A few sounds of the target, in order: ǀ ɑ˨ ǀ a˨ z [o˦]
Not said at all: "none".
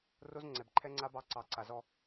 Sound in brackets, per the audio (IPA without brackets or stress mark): ɔ˦